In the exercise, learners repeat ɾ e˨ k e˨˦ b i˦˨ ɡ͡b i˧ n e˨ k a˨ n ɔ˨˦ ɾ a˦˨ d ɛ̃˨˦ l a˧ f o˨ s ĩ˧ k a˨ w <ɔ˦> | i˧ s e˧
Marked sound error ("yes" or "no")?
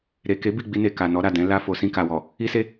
yes